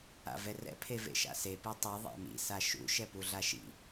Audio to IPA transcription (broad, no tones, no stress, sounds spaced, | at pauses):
a̰ v ɛ r ɛ̰ pʰ e v ḛ ʃ a̰ s e p i tˤ i ðˤ a̰ m ḭ s a ʃ ṵ ʃ ɛ p u ɮ a ʃ ḭ